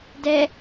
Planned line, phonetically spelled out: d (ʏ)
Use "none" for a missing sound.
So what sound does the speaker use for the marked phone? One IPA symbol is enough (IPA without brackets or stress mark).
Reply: ɛ